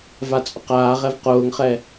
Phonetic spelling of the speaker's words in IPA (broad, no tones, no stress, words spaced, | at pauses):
vat͡sʼʊqaːʁɛv qʊːŋχɛ